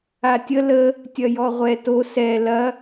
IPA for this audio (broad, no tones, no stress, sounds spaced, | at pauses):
a tʲ ə l ə | tʲ ɐ j ɔ ʁʷ ɛ t o s ɛ l ɐ